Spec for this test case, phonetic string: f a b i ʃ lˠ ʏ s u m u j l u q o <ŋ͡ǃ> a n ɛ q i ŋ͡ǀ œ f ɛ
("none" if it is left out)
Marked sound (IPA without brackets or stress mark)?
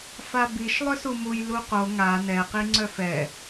ŋ